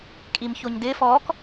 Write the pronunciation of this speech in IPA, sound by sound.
kʼimçoɲdɪ fɔk

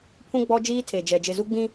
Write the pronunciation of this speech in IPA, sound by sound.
pʰũ˦ ɡ͡bɔ˦ d͡ʒiː˦tʰe˨d͡ʒɛ˨ d͡ʒɪ˨zu˦ ɡ͡bĩ˦

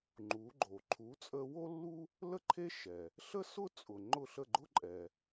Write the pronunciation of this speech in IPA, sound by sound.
ŋ͡ǃu˩˥ɡ͡ǃo˩ ǃʰu˩˥t͡sʼə˧ wo˥lːu˥ | lə˥ǃʰe˥ ʃɛ˩ | ɬə˥sʊ˥t͡sʼʊ˩ ŋ͡ǃʊ˥˩ɬə˥˩ɡ͡ǃʊ˥ ǃʼɛ˩

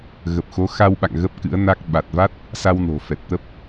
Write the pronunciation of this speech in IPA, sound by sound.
ɣə˨˩p̚xo˨˦xa˧wɓa̰˧˨ŋ ɣə˦˥p̚kɨ̰˧˥ə̯na˦˥k̚ ɓa˨˩t̚va˦˥t̚ | sa˧wno̤˨˩fɛ˨˩t̚t̪ə˦˥p̚

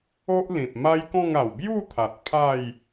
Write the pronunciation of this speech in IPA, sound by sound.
o˦ʔlĩ˨p̚ ma˦jkɔ̃˥˧ŋa˨˩w bju˥˧t̪ʰa˨t̚ pʰa˥˧j

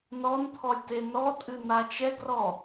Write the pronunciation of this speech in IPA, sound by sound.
nɔnt̪ʰɔlʲ tenɔtʼɨ nat͡ʃɛɡrɔ

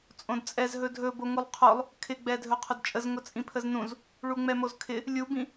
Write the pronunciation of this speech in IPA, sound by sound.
t͡sʼõdt͡sʼɛz ɦɵdʱɵ boŋulˠqʰolˠ | kʰɪɡ͡bɛdʱɵ qʰʊdt͡ʃʼəz ŋʊt͡sʼĩpʰəznũz | ɭuŋ͡mɛmozkʰɪ | lʲubĩ

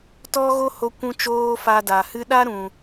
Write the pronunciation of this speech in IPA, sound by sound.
tɔ˦ɣo˦ho˧ kʷũ˧t͡ʃoː˧ fa˧da˨hɨ˦ ɗa˦ɾũ˨

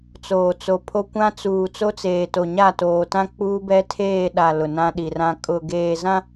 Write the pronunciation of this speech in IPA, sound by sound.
t͡soː˨t͡so˨pʰo˦ kʷã˦t͡suː˨ t͡so˦t͡seː˨to˨ɲa˦˨ toː˨tã˦ k͡puː˦bɛ˦tʰeː˦˨ɗa˨ lʊ˨nã˦ɗi˨rã˦ kʼʊ˨ɡeː˨ zã˦

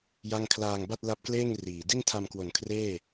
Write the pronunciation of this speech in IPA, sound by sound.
ja˥˩ŋ kʰlaː˧ŋba˥˩t̚la˦˥p̚kleː˥˩ŋ riː˨˩ di˥˩ntʰa˧mkwo˨˩n kʰreː˥˩

